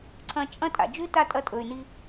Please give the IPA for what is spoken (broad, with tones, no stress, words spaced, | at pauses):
ǀʰɐ̃˧t͡ʃʼɐ̃˦ tʼa̰˨d͡ʒʉ˦ta˦˨tʼɐ˧ tʼɵ˨y̯ni˧